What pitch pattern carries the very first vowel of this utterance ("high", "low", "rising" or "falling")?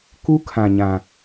high